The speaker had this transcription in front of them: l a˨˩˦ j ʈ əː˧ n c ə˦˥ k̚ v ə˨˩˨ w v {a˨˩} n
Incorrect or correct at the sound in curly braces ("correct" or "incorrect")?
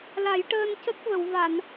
incorrect